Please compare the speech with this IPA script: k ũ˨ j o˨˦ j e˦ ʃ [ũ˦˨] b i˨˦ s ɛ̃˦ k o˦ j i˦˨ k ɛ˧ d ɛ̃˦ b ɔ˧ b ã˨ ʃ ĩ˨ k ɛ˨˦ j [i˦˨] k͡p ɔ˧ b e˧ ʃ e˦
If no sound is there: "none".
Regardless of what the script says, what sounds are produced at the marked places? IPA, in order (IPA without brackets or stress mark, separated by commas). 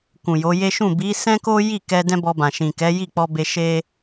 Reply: ũ˦˨, i˦˨